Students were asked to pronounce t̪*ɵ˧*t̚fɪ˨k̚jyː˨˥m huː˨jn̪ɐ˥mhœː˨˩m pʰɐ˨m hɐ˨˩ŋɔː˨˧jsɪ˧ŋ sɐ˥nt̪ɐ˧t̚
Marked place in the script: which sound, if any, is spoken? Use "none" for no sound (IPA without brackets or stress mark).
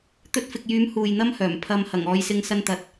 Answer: ɵ˧